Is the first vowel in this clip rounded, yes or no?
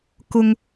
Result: yes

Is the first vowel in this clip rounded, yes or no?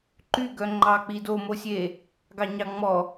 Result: yes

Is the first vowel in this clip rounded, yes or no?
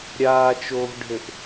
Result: no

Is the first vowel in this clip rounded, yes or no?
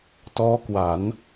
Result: yes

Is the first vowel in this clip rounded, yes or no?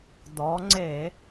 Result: yes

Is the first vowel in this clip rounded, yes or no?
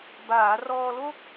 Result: no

